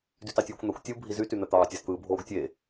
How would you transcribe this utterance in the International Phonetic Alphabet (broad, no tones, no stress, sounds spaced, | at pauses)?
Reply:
d y t ɑ tʲ eː kʷ n̪ ɑ kʷ tʲ u bʱ i z y t y n̪ æ t̪ ɑː tʲ e z t̪ ɯː bʱ oː ɡ tʲ e